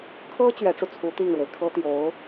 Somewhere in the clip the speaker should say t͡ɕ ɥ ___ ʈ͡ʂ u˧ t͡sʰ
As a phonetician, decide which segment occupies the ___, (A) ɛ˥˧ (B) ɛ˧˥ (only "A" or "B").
B